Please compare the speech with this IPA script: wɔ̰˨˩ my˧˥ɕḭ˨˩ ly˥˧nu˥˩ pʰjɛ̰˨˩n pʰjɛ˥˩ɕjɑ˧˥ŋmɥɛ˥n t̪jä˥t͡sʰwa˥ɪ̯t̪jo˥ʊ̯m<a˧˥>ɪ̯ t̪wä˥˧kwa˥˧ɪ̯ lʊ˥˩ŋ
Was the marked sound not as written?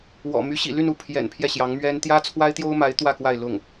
no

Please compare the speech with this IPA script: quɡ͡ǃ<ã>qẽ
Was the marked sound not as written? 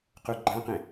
no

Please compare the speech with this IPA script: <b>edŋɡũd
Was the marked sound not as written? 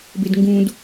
no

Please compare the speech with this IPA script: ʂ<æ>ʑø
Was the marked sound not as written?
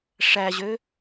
no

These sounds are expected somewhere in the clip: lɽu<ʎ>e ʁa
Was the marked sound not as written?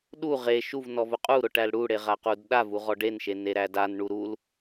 yes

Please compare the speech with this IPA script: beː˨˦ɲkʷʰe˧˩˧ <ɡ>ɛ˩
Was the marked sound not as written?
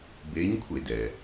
yes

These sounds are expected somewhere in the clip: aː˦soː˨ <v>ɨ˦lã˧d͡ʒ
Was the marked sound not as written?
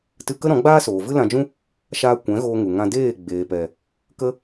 no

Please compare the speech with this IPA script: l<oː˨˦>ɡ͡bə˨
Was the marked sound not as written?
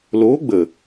no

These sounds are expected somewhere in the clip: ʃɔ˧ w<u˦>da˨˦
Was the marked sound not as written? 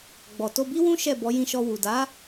yes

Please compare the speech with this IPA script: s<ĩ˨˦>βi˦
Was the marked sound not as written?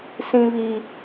yes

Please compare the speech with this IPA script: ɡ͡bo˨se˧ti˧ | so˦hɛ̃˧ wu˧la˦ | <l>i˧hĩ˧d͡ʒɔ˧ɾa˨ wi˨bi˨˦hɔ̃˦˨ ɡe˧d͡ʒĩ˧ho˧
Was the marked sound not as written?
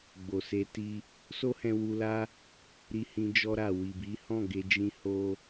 yes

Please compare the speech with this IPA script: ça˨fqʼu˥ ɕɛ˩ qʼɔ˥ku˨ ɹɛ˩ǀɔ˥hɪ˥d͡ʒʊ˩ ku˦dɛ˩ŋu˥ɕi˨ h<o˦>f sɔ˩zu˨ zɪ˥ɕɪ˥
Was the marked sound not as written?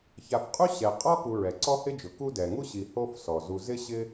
no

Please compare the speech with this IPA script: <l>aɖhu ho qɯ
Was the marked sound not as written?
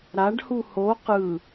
yes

